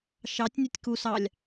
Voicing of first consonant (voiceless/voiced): voiceless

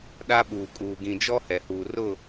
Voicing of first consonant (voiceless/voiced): voiced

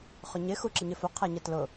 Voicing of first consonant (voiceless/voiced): voiceless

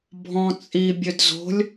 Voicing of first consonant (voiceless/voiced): voiced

